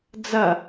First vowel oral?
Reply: yes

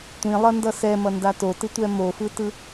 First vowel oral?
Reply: no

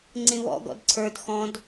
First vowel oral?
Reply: no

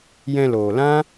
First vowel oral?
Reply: no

